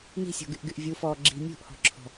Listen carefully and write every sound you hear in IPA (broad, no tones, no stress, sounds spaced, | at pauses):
n i̤ sʲ ɔ̤ ɡ y ʔ ɡ y ʔ vʲ u f ɔː ɡ͡ǁ i̤ mʲ ṳ ʔ h ɔ̤ ǁʰ ɔ̤